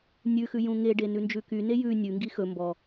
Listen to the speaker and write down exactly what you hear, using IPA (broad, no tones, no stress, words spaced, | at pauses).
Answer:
nʲʉxʉ jũŋeɖe nʉnd͡ʒʉkyne jʉ nʲʉŋɡi xɵ mbɔ